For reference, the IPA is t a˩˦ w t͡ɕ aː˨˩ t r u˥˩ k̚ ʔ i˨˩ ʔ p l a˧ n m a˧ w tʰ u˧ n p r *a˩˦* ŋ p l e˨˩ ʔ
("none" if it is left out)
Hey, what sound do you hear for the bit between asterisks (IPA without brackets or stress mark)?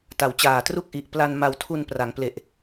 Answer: a˩˦